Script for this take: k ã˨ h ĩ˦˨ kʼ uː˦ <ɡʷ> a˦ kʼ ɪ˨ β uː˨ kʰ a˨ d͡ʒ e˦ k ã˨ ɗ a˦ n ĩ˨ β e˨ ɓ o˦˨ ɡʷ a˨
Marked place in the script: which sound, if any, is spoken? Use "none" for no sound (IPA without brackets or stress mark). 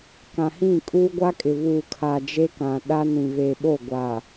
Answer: ɡʷ